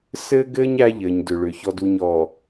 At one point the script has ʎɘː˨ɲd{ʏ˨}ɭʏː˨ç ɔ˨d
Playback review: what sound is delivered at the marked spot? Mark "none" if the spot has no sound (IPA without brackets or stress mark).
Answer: ʏ˨